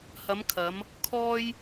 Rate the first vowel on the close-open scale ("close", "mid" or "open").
open